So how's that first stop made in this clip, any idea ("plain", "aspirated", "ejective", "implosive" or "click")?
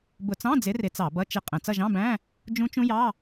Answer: plain